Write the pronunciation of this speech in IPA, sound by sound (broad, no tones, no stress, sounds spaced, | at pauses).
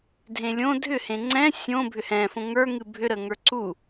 dʱ ẽ lʲ õ dʱ ʏ h ẽ ŋ͡ǀ ɛ̃ sʲ õ bʱ ʏ h ɛ̃ f õ ŋ ə˞ ŋ ɨ bʱ ʏ ɾ ə ŋ ə˞ ǀ u